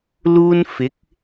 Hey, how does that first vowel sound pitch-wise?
high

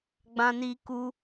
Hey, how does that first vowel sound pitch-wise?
high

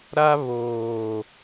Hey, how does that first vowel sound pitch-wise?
high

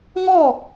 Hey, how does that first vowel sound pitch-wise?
falling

